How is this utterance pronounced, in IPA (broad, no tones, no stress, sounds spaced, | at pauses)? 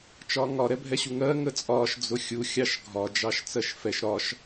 t͡ʃ ɒː ŋ ɒ ɾ ɛ bʱ ɛ ɕ u ŋ ɜ ŋ ə t͡sʼ ɒː ʃ d͡z ʊ xʲ u xʲ ɑ ʃ ɡʱ ɒ d͡ʒ ɑ ʃ t͡s ɜ ʃ f ɛ ʃ ɾ ɒ ʃ